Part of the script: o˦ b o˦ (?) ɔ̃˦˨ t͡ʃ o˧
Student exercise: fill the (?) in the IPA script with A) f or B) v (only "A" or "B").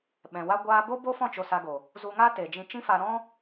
A